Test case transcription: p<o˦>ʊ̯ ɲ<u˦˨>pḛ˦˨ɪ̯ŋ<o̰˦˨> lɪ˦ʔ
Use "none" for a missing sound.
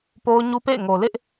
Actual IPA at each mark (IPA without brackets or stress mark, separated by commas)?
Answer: o˦, u˦, o˨